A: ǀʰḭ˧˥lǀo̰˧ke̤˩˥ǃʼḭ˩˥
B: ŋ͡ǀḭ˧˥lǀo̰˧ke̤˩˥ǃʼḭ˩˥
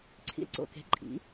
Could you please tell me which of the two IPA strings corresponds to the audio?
A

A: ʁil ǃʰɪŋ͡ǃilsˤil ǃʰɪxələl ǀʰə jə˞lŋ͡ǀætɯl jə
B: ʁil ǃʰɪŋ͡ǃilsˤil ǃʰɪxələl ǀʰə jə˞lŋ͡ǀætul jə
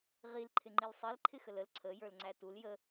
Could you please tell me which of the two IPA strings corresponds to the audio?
B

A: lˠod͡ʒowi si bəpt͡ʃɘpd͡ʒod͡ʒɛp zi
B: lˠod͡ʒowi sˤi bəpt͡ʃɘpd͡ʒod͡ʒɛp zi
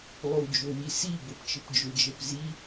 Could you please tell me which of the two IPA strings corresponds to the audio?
A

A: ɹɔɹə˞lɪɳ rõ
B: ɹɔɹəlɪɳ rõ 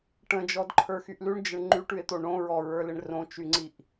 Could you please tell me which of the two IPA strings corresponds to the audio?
A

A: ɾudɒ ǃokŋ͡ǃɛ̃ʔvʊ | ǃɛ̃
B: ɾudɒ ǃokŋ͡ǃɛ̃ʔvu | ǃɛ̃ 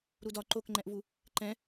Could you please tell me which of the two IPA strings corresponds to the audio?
B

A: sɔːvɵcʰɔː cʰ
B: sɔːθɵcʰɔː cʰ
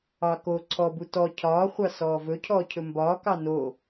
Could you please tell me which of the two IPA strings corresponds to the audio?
A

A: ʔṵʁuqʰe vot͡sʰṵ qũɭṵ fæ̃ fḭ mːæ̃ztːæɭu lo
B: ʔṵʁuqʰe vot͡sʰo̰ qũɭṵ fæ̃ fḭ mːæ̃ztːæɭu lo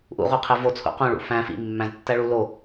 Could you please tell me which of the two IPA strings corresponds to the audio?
A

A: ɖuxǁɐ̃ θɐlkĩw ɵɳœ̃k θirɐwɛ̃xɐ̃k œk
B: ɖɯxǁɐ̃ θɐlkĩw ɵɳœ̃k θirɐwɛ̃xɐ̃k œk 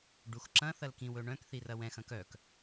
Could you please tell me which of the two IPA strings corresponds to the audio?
A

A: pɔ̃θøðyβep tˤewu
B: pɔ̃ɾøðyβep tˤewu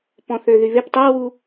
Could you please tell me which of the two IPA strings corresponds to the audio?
A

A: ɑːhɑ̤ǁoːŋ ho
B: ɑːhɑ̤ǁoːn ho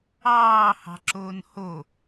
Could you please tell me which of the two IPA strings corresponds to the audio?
B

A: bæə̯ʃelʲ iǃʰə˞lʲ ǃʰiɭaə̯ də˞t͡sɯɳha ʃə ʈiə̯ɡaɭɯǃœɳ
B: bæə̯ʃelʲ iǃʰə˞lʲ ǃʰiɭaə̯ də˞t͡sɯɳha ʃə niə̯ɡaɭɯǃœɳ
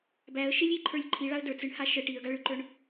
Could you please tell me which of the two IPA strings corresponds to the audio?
A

